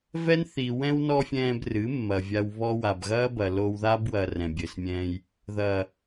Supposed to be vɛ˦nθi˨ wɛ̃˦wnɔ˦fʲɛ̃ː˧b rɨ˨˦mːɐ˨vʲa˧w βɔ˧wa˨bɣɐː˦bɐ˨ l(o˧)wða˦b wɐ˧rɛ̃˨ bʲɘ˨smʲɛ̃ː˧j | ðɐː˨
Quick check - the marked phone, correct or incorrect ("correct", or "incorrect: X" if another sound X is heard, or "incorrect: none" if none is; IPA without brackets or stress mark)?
correct